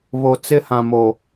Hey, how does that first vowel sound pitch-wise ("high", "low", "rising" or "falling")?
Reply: low